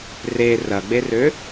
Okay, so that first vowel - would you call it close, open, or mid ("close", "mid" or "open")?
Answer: mid